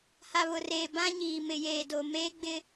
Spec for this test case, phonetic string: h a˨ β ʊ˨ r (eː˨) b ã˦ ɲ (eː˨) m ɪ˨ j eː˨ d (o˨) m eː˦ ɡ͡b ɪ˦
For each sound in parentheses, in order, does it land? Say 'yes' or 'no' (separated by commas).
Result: yes, no, yes